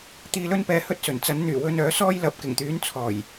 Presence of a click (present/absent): absent